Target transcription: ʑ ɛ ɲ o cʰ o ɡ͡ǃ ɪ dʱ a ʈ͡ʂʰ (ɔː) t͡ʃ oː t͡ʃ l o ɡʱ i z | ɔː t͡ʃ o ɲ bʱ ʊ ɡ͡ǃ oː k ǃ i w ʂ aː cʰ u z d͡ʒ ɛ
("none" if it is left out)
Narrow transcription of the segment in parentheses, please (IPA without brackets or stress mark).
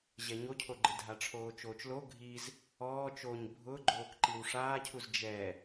oː